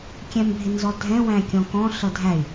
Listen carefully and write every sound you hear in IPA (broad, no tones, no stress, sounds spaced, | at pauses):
kʲ ɛ̃ m bʱ ɪ n z ɔ dʱ ɛ̃ w æ̃ kʲ ɔ̃ k ɔ̃ ɬ ʌ dʱ æ y̯